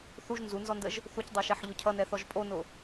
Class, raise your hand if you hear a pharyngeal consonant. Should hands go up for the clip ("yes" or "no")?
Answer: yes